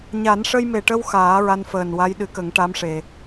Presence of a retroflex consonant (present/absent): present